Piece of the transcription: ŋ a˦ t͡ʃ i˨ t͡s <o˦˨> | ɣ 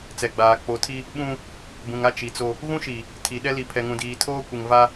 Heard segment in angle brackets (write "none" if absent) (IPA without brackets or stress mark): o˦